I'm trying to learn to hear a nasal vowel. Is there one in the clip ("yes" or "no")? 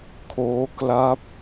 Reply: no